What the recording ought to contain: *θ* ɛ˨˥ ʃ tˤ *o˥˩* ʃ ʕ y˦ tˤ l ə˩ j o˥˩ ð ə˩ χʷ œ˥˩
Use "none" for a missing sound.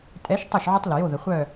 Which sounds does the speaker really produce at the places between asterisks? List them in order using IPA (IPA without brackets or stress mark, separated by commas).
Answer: tʼ, o˥˩